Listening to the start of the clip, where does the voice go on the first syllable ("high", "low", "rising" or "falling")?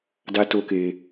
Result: high